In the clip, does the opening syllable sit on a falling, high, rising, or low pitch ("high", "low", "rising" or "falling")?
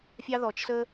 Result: high